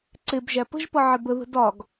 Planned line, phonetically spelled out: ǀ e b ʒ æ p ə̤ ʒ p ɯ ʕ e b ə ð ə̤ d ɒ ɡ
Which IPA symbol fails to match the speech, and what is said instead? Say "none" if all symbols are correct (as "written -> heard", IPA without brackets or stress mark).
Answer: ɯ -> ɤ